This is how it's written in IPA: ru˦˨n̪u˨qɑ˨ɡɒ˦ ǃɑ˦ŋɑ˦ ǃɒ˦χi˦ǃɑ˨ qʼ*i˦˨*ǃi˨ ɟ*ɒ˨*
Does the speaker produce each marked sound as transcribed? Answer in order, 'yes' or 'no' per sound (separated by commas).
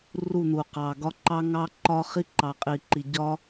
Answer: no, no